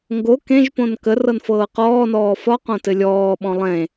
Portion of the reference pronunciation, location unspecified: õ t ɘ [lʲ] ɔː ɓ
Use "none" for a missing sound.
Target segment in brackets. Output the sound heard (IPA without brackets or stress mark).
lʲ